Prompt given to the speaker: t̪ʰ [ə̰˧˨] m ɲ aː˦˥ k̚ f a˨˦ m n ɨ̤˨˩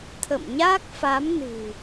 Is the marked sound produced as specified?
yes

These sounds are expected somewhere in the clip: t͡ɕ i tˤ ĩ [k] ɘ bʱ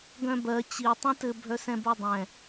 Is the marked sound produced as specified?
no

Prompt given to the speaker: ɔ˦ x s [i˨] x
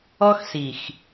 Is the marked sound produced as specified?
yes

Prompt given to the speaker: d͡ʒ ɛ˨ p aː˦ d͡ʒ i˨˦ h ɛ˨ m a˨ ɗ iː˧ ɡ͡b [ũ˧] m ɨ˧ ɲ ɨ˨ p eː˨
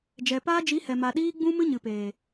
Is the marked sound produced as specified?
yes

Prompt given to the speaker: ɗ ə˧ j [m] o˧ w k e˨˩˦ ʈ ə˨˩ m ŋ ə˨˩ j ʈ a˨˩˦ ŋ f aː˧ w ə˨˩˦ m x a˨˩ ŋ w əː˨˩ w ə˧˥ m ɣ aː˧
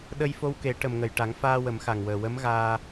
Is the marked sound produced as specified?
no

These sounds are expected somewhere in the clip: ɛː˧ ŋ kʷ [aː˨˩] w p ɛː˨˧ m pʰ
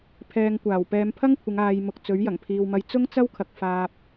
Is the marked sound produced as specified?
yes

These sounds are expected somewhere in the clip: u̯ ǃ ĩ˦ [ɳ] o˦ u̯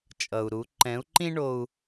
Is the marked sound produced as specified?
yes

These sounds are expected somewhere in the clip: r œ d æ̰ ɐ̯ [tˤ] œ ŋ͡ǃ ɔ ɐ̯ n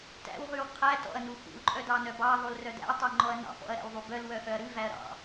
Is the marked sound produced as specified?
yes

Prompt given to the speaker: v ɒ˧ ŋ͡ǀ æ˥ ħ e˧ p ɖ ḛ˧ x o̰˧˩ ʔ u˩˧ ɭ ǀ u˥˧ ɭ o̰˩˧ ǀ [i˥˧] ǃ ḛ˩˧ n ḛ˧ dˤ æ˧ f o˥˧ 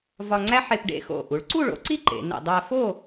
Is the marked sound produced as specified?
yes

